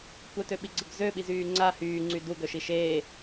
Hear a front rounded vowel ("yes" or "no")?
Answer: yes